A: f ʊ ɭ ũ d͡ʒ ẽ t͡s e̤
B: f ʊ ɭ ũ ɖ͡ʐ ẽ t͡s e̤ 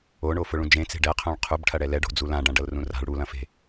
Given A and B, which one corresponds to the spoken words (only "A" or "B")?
A